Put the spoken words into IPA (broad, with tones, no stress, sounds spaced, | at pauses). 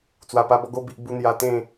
t͡s w a˨˩ p a˧ b ɔ˧ ɡ o˧ b i˨ ʔ b u˧ n̪ j a˧ t̪ ẽ˥˧